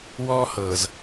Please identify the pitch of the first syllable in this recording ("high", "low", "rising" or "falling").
high